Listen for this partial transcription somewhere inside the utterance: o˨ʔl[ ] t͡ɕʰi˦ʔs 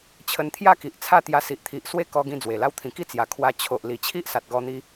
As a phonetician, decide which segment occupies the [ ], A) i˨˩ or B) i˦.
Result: A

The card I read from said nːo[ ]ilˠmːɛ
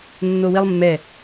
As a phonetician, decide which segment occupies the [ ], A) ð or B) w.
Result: B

